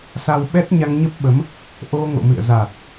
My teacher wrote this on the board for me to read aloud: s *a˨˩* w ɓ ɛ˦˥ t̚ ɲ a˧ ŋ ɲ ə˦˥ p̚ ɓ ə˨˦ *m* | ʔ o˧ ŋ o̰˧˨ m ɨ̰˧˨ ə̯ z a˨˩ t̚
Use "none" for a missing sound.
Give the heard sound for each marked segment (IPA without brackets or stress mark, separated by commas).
a˧, m